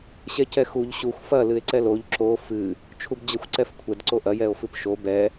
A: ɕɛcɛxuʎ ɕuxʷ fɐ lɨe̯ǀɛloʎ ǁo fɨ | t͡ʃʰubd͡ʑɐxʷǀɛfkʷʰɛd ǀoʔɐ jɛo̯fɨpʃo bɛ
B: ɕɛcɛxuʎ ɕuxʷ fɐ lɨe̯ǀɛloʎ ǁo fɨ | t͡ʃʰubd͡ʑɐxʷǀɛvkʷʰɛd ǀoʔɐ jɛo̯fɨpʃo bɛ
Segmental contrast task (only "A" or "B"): A